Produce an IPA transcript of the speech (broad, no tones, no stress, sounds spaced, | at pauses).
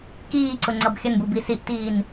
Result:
k iː ǀ ʊ ŋ͡ǀ ʌ b xʲ ə n b u b i s i ʔ t iː n